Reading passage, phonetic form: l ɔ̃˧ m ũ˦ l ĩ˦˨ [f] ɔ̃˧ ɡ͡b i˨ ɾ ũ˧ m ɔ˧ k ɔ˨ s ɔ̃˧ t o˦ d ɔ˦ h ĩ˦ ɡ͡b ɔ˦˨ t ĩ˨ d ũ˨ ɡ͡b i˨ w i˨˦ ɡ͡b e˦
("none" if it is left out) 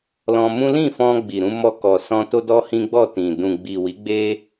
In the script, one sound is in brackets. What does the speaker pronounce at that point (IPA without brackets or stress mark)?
f